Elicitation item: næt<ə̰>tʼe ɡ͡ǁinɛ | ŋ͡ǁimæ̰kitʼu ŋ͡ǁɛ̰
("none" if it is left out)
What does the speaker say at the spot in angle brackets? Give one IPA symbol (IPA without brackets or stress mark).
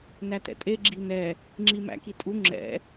ɛ̰